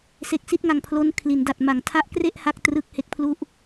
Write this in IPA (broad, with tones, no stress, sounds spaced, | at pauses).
s e˨˩ k̚ s i˥˩ t̚ ŋ a˨˩ ŋ pʰ l o˦˥ n kʰ l i˩˦ n d a˨˩ t̚ m a˩˦ ŋ tʰ a˦˥ ʔ k r e˥˩ ʔ h a˥˩ k̚ t r ɯ˦˥ k̚ h e˦˥ k̚ pʰ l u˥˩ ʔ